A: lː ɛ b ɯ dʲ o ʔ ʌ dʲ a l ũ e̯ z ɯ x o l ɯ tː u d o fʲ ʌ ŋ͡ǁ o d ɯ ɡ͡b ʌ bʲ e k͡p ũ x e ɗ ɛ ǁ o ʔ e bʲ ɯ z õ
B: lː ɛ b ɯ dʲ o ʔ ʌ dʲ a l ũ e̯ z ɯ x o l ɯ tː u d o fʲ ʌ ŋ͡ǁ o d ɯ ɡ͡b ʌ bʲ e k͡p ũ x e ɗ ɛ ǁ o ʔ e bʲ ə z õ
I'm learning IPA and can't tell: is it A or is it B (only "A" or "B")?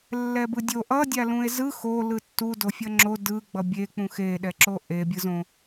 A